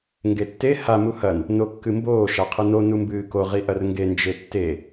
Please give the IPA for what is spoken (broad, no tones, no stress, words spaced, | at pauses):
ŋɡetːe ha muhɐn | nokːɨmboː ʃaqʰɨno numbɨːko ʁiʔɐrŋɡe nd͡ʒetːe